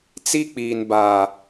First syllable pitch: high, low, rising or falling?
high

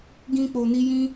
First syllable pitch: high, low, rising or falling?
high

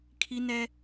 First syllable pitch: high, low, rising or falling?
high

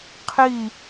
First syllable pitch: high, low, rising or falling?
falling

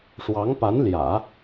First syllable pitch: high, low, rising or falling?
rising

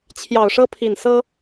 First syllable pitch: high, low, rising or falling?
low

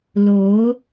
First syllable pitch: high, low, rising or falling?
rising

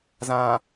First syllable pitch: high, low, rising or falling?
low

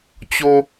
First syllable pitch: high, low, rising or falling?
high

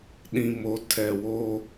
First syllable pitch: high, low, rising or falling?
low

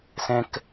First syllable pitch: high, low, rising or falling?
high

